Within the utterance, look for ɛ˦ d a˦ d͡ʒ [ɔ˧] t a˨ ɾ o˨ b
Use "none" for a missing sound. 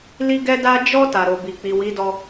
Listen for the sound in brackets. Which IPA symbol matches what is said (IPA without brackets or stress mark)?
ɔ˧